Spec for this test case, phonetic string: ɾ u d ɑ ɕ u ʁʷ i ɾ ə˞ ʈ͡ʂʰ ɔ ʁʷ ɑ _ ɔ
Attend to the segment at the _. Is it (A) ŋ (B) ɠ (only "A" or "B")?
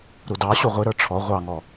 A